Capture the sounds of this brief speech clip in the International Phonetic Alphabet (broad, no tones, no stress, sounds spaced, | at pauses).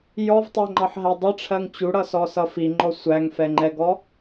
j ɔ v tˤ æ ŋ͡ǃ ɑ ħ ɦ æ dˤ ə ʈ͡ʂʰ ɜ ŋ t͡ɕ u ɽ ʌ s ɔ s ʌ f i ŋ͡ǃ ɔ sʷ æ ŋ f ɛ ŋ͡ǃ ɛ ɡ ɔ